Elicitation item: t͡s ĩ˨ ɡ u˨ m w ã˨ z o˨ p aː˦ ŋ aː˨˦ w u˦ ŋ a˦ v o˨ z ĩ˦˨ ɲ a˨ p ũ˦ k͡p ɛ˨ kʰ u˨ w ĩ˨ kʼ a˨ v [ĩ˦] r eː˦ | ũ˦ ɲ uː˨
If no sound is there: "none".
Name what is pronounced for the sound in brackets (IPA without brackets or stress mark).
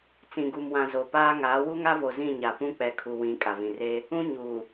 ĩ˨